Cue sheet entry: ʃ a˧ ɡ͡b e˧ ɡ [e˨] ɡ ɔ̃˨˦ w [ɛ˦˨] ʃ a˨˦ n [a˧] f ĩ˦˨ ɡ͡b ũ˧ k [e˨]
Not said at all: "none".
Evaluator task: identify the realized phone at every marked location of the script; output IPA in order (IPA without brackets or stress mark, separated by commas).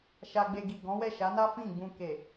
i˨, ɛ˦˨, a˦, e˨